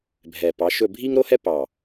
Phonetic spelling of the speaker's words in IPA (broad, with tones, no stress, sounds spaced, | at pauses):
bʱ ɛ˨˩ p ɑ˨˦ ʃ ɵ˥˧ bʱ i˥ ŋ ɾ o˥ h ɛ˥ p ɑ˨˩